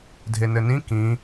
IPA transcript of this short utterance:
dʱ e n ɘ n ĩ k ĩ

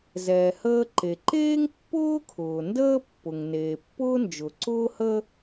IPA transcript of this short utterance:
z ɛː˩ h əː˥ ǃ e˩ ǃ eː˥ ŋ pː ʊː˥ kʰ ʊː˩ n d əː˥ pː ʊ˩ ŋ n eː˩ pː ʊː˥ n d͡ʒ ʊ˩ ǀ ʊː˥ h ə˥

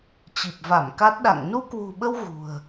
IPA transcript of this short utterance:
t͡ɕ i˨˩ p̚ v a˧˩ m k a˦˥ t̚ ɗ a̰˧˨ ŋ n u˧ k w ṳ˨˩ ɓ ə˧ w ɣ ṳ˨˩ ə̯

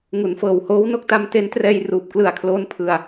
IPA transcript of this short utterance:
ŋ u˩˦ n f ɤː˨˩ w h oː˦˥ w n o˥˩ k̚ t a˧ m t e˦˥ n t r ɛː˧ j r uː˨˩ p̚ k l ɯ˨˩ a̯ kʰ l oː˦˥ n pʰ ɯ˧ a̯

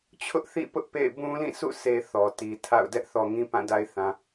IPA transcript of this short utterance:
t͡ɕʰ ʊ˦ ʔ θ ḭ˦˨ p ʊ˦ ʔ p ḛ˦˨ ɪ̯ b ũ˦ l ĩ˦˨ sʰ ṵ˦˨ sʰ e˦ θ ɔ˨ t i˨ tʰ a̰˦˨ ʊ̯ d ɛ˦ ʔ θ ɔ˨ ŋ ĩ˦ p ã˦˨ d a˦ ɪ̯ θ ã˨

